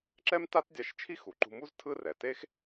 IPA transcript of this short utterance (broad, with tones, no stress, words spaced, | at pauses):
ǁɛ˥mta˥tdʲa˧ʃ t͡ʃʰi˥xu˩ǃṳ˧mu˥z tʰɯ˥rɛ˩ te˥x